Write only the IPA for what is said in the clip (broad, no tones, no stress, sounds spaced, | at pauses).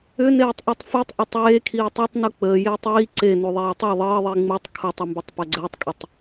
ʏ n eː tˤ ʔ i tˤ f e tˤ ʔ ɐ tˤ eː kʰ iː tˤ e tˤ n u k͡p əː j eː tˤ iː ǀ e n u ðˤ eː tˤ ɛ ðˤ əː ðˤ i ŋ͡m u tˤ kʰ u tˤ ɐ m b ʏ tˤ p ɐ ɡ͡ǀ əː tˤ kʼ ʏ tˤ